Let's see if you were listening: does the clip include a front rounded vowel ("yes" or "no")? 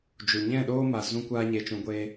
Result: no